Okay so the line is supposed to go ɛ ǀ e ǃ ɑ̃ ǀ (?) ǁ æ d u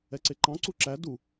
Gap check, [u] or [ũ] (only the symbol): u